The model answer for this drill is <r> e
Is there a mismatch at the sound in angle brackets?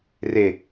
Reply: no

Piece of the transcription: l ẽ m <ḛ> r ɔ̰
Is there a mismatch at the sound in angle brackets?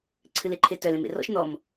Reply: no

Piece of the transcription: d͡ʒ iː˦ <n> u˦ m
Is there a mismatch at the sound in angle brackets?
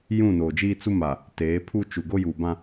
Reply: yes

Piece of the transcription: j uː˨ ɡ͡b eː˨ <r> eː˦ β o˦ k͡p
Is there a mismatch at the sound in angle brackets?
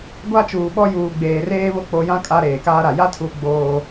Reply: no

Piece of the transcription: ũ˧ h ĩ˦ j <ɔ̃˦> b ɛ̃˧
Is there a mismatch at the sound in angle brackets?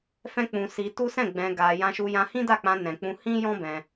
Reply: no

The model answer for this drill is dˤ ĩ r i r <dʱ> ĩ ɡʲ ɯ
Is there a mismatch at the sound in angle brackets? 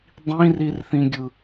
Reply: yes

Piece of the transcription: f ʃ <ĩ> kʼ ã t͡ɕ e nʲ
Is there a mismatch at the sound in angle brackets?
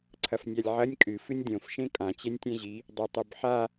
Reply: yes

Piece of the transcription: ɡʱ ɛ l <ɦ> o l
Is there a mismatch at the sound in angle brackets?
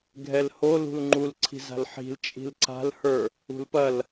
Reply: yes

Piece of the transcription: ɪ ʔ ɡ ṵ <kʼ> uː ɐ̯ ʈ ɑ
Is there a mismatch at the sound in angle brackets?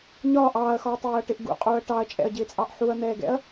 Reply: yes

